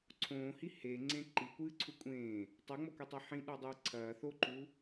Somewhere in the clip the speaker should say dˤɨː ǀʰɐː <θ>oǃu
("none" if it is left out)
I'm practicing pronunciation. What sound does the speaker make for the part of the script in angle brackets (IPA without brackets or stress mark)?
θ